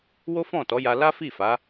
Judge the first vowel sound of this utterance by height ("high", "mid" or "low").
mid